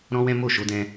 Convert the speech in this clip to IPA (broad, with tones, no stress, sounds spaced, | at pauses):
ɾ ɔ̃˦ w ɛ̃˦ m o˦˨ ʃ o˨˦ d ɛ̃˧